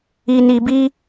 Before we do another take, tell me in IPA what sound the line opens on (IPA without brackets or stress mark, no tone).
i